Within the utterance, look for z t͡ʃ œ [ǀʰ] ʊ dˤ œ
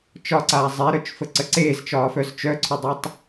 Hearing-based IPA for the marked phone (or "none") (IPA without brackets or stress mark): ǀʰ